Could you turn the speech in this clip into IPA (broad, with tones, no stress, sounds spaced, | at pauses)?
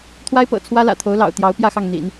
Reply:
t̪ʰ w a˥ ɪ̯ p ɤ̰˨˩ t͡sʰ w ä˥ l ä̰˨˩ t̪ʰ o˧˥ ʊ̯ l ɑ̰˨˩ ʊ̯ t̪ j ɑ˧˥ ʊ̯ p j ä˥˧ x ɑ˥˩ ŋ n̪ ḭ˨˩˦ n